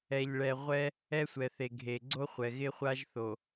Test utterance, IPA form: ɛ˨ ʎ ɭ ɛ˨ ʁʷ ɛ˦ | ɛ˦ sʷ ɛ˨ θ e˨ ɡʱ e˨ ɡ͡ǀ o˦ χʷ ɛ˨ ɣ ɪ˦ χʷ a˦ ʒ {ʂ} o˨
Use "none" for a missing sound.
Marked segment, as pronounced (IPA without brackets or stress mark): θ